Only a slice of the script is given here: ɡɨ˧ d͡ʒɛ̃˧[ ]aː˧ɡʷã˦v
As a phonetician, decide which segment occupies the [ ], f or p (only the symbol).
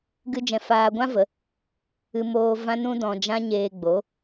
f